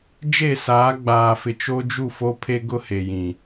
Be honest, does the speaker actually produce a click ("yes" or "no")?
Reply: no